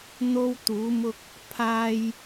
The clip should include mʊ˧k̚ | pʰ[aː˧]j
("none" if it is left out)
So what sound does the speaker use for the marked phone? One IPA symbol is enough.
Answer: aː˧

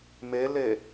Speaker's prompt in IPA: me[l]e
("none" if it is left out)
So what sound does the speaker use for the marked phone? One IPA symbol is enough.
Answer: l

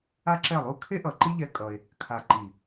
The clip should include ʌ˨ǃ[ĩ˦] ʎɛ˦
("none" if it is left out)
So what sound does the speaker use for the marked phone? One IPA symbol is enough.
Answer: i˦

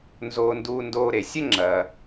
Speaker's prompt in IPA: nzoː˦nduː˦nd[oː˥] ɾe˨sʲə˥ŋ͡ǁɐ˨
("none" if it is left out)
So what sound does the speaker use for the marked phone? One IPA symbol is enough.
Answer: oː˦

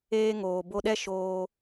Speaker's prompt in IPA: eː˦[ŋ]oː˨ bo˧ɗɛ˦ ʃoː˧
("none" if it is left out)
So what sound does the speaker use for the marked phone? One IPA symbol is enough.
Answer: ŋ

